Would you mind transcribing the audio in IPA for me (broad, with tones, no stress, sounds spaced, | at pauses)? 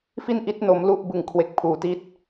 f i˥˩ n ʔ i˦˥ t̚ n o˦˥ m l u˥˩ ʔ b ɯ˨˩ ŋ kʰ w e˨˩ k̚ pʰ uː˩˦ t i˦˥ t̚